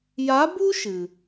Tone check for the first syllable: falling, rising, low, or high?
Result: rising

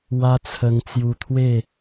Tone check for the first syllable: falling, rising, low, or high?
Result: high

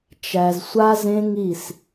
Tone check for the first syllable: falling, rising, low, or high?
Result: low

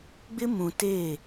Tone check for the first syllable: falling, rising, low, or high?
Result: high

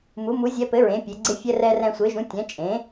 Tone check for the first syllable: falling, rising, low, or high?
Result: rising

